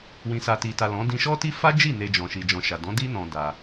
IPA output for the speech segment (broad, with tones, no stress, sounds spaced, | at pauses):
w ĩ˨ s a˨ t i˨ t a˨ l ɔ̃˨˦ d ĩ˧ ʃ ɔ˦ t i˦ f a˦ d͡ʒ i˦˨ n e˧ d͡ʒ ɔ̃˨ ʃ i˨ d͡ʒ ɔ̃˨ ʃ a˨ d ɔ̃˨˦ d i˦ n ɔ̃˧ d a˧